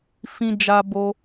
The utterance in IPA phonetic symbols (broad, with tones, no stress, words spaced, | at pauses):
fĩ˧ d͡ʒa˧bo˧